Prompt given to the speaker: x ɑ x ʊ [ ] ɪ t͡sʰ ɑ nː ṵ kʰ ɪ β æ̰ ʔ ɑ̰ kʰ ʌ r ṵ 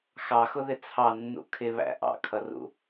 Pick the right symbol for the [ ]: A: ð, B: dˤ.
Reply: A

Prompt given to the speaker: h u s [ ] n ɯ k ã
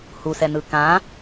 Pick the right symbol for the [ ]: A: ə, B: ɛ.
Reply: B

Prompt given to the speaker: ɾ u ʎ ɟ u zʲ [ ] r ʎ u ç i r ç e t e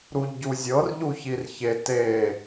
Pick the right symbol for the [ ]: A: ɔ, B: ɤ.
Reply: B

